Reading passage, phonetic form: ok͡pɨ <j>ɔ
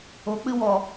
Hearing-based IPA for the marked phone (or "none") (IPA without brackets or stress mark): w